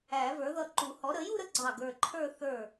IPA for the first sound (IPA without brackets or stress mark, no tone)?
æ